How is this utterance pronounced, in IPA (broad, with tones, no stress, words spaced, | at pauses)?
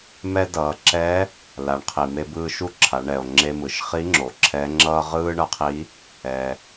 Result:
mɛ˥dʌː˩˧ ǁɛ˧˥ | la˩˧ɳqʰi˩me˧bɯː˧ ʃu˥ǁʰa˩˧ ɳɛ˩o̯ ŋ͡ǁe˧mɯ˩ʃ χi˧˥ŋ͡ǁo˩ ǁʰɛ˧˥ŋ͡ǁʌː˥ ʁɯː˥ɳʌ˧˥qʰi˧˥ | ɛ˩